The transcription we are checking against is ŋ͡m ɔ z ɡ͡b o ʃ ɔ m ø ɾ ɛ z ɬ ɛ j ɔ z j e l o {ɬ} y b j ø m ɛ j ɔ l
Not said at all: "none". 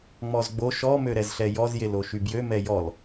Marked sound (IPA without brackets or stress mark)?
ʃ